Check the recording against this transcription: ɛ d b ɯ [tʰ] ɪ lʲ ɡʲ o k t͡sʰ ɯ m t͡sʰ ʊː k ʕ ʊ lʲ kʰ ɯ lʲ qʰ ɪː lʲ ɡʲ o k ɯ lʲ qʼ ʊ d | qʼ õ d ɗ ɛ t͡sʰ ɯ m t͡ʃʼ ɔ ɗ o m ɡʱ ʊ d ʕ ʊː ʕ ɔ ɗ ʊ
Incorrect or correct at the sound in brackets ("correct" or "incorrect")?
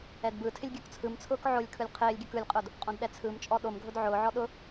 correct